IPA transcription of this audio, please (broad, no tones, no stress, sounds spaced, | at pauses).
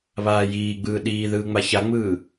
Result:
β aː j iː ɡ͡b ɯː ɗ iː ð ɯː ŋ͡m a ç a ŋ͡m ɯː